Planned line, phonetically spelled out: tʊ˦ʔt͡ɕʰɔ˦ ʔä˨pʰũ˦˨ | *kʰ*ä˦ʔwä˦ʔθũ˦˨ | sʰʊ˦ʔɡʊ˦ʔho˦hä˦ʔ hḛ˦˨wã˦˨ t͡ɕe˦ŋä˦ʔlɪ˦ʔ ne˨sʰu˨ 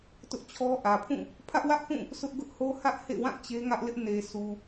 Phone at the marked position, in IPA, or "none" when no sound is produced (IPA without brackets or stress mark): pʰ